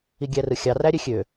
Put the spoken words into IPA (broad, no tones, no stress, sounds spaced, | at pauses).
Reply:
i ɡʲ æ r ɯ xʲ ɑ r æ ɾʲ ø xʲ ø